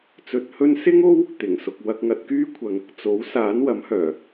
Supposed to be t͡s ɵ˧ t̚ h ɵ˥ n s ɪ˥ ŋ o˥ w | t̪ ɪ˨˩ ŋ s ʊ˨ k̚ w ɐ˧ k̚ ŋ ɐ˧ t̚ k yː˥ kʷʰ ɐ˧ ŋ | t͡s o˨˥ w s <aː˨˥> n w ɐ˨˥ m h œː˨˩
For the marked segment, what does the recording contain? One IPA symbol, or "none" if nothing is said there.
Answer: aː˨˥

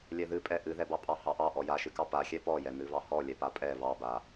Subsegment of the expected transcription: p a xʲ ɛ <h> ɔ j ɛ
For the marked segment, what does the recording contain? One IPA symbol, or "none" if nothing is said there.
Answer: p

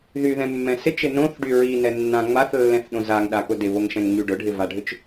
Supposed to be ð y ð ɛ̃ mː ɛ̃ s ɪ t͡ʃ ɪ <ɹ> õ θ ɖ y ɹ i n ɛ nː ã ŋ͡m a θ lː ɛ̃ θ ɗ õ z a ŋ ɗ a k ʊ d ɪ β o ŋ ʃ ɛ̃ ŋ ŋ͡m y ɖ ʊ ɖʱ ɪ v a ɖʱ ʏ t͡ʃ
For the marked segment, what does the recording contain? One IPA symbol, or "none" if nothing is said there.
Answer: n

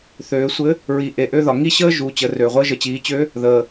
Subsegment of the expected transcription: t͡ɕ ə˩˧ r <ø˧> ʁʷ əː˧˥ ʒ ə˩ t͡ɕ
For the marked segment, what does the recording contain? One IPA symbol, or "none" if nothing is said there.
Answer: ø˩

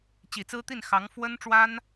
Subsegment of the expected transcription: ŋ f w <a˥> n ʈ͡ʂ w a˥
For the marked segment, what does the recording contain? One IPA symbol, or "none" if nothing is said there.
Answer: ə˥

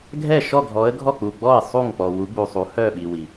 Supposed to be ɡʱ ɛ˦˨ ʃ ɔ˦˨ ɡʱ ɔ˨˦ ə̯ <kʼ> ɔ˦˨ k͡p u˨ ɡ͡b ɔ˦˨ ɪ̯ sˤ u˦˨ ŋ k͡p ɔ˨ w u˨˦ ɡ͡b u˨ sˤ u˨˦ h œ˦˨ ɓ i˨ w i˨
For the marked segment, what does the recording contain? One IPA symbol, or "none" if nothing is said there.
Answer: ɡʱ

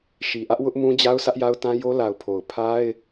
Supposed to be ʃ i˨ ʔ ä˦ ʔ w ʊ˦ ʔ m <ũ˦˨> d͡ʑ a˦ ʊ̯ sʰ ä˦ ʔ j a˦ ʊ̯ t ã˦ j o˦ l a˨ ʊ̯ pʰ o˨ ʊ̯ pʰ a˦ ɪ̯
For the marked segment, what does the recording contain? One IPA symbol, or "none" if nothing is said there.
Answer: ũ˦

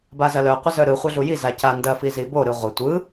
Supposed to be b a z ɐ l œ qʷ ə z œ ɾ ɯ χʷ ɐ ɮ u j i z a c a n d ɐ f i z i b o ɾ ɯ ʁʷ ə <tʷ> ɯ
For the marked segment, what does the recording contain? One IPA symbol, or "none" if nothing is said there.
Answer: tʷ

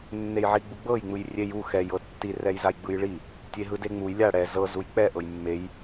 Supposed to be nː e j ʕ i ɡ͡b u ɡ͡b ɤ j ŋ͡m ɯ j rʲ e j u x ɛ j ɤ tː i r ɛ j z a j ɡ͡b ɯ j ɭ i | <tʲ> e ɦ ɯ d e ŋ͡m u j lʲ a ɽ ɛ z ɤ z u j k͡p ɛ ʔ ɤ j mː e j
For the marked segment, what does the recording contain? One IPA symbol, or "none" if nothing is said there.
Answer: tʲ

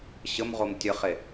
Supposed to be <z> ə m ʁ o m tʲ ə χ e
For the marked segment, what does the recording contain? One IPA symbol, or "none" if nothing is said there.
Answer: ɕ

